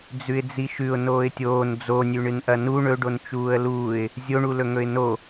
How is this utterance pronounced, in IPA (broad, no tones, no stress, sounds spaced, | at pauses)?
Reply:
d͡z ʉ ɪ̯ d͡z i ʃ ʉ ʊ̯ n oː ɪ̯ tʲ oː n d͡z o nʲ ʉ ɳ ɨ n ʔ ɐ n u ɳ ɵ ɖ o n t͡ʃ uː ə̯ l uː ɪ̯ | zʲ o ɳ u l ɵ ŋ ɵ ɪ̯ n o